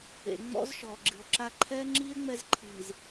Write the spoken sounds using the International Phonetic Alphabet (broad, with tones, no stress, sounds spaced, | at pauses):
ḛ˨ ŋ͡m ɔ̰˦ z ʃ ɔː˨ ɡ͡ǁ ɨ˨ o̯ ǁ a˦ ǃʰ ɛ˦ ŋ͡ǁ i˦ e̯ ŋ͡m ɛ˦ z ǃʰ iː˨ z